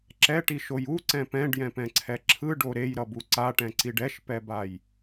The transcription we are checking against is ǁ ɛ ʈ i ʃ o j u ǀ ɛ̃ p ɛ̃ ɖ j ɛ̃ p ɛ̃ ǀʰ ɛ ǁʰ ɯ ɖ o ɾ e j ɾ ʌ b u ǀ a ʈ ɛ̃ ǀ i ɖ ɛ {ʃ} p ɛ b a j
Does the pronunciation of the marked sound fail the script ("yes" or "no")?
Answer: no